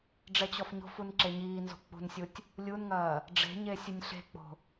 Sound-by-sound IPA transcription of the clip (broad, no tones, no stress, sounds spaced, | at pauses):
ɖ͡ʐ ɛ t͡ɕ ɔ f ɲ o̤ f u n ǁ e ɲ iː n z o̤ k͡p ṳ n sʲ u tʲ | lʲ u n ŋ ɐː | ɖ͡ʐ e̤ ɲ e sʲ ɨ nʲ ɬ e̤ k͡p o̤